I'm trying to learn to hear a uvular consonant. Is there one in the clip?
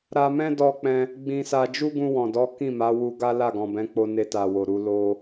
no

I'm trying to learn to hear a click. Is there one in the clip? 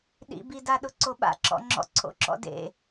yes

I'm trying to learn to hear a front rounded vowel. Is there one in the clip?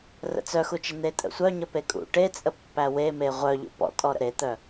yes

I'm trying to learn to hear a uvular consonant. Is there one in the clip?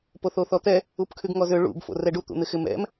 no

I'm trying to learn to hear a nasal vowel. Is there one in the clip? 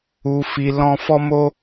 yes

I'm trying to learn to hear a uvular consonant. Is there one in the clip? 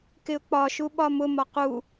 yes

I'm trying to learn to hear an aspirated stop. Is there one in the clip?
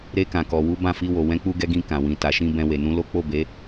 no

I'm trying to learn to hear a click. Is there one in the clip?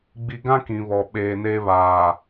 no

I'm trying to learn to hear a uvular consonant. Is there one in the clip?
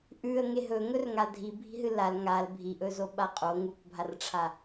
yes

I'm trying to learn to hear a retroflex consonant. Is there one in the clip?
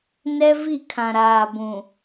no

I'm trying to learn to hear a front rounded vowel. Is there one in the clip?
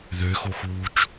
yes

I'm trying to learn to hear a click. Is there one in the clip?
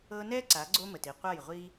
yes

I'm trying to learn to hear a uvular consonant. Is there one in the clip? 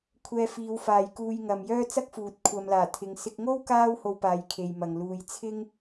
no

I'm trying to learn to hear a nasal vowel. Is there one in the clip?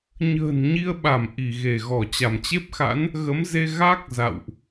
no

